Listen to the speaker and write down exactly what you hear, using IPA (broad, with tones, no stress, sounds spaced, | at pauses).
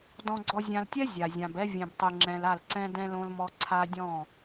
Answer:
d ɔ̃˨ ɡ͡ǀ ɔ˨ zʲ ã˨ l tʲ ɛ˦ zʲ a˨ zʲ ã˨ b ɛ˦ vʲ ɛ̃˨ b tˤ ɯ˨ ŋ͡ǁ ɛ̃˨ l a˦˨ l ǀ ɛ̃˦ d ɛ̃˦ l õ˦ l m ɔ˦ ǀʰ a˦ dʲ ɔ̃˦˨